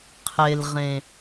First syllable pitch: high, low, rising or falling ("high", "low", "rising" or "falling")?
low